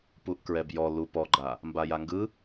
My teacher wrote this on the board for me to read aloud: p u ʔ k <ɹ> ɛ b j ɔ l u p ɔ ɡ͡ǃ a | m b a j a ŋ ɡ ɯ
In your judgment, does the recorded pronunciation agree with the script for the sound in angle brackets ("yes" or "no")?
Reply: yes